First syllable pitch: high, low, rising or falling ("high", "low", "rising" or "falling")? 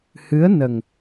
rising